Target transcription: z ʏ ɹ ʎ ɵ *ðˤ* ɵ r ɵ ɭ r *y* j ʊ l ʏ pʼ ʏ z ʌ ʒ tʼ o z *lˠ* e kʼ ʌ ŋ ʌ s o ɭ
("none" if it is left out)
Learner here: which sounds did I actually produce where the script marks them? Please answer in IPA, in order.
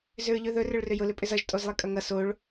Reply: ð, ʏ, lˠ

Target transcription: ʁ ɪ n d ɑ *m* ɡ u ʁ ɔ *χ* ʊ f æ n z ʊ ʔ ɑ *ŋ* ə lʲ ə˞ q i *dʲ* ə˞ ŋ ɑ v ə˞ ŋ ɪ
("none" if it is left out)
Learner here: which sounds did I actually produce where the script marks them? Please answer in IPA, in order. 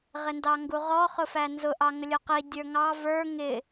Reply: ŋ, χ, ŋ, dʲ

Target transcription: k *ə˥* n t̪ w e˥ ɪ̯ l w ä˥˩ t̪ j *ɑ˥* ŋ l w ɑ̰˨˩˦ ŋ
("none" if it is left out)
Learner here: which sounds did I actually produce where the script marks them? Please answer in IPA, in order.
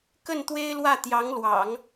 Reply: ə˥˩, ɑ˧˥

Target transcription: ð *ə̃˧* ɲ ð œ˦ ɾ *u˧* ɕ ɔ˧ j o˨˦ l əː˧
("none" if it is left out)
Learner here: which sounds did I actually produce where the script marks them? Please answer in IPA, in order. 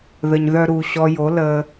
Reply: ə˧, u˧

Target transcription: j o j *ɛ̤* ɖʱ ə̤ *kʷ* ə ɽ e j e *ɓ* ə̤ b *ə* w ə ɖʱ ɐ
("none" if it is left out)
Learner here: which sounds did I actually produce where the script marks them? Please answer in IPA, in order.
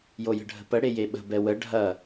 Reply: ə̤, p, ɓ, ɛ

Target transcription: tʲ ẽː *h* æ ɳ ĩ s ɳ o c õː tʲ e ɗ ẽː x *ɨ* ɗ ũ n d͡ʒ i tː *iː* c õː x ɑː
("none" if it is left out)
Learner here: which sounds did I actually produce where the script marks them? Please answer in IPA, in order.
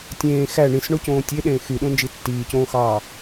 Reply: x, y, iː

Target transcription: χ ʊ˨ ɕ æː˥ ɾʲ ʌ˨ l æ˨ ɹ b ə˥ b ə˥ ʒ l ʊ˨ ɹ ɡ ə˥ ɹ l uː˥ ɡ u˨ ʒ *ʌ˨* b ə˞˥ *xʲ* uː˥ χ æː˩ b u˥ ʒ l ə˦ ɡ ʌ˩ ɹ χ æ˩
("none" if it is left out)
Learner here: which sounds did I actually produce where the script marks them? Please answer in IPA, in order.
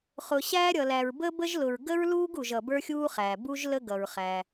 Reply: ʌ˨, xʲ

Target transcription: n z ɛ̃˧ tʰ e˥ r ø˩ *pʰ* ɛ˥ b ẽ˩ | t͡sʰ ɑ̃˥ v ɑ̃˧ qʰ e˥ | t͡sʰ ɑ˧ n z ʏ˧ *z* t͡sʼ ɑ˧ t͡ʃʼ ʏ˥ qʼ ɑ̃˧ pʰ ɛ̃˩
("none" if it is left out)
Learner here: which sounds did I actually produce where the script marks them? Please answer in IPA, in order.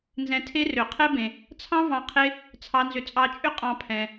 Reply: qʰ, none

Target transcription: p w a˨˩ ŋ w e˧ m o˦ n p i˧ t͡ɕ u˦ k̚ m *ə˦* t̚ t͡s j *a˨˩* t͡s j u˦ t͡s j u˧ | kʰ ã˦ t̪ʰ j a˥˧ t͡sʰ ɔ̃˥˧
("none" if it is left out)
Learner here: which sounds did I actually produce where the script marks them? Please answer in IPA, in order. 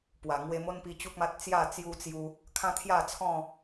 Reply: a˦, a˥˧

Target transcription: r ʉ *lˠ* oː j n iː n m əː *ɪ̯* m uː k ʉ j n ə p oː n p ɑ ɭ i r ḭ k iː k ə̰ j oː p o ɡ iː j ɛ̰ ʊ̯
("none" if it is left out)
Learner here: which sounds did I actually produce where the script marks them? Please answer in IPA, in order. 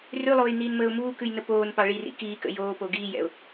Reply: lˠ, ʊ̯

